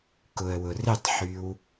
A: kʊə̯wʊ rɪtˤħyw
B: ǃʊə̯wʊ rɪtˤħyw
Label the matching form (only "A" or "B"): A